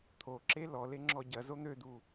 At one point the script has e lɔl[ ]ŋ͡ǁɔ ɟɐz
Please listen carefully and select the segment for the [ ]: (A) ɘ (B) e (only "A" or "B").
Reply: B